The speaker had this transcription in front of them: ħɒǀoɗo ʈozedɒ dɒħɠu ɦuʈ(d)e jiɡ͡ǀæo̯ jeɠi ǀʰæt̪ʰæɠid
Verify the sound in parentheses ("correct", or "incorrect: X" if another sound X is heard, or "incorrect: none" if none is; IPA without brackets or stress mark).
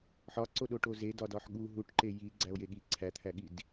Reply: incorrect: ǃ